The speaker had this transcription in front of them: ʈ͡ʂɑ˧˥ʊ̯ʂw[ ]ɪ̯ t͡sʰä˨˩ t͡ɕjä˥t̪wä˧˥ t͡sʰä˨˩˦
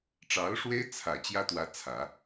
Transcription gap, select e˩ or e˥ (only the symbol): e˥